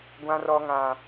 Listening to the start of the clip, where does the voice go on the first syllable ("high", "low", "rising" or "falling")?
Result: high